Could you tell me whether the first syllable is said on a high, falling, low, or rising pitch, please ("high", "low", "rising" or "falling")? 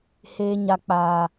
high